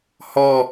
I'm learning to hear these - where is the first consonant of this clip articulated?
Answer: throat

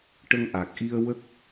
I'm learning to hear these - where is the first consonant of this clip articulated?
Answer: retroflex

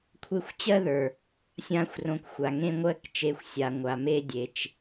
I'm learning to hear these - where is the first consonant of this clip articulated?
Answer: velum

